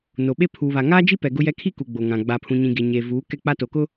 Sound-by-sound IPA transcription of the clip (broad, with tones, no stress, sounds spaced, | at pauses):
n o˨ ɓ e˦ pʰ uː˨ β a˨ ŋ aː˦ d͡ʒ i˦ p ɛ˨ ɡ ʊ˦ j ɛ˦ kʰ i˦ k u˨ ɡ͡b o˨ ŋ ã˨ ɡ͡b a˨ pʰ ũ˨ ɲ ĩ˨ ɡ e˨ ɲ e˨ v uː˨˦ k ɛ˦ k͡p a˦ t o˨ k ʊ˦